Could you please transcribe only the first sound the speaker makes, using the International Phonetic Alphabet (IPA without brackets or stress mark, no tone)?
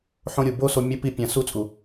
ħ